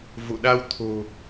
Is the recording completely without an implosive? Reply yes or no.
no